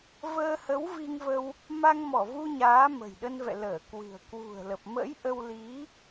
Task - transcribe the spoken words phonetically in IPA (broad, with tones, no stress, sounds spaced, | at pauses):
v əː˧ h ə˨˦ w v i˧ ŋ v ə˧ w | m a˧ ŋ m ɔ˧˩ v u˧ ɲ aː˨˦ m ə̤˨˩ j ɗ ə˧ n v ɛ̰˧˨ l əː˧˩ k w ɨ̤˨˩ ə̯ k w ṳ˨˩ ə̯ l ə˨˩ p̚ m ə̰˧˥ j ʔ ə˧ w l i˨˦